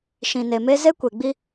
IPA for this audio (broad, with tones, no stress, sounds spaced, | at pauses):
ʃ ĩ˨ n e˨ m e˦ z e˦ kʷ e˨ ɡ͡b i˦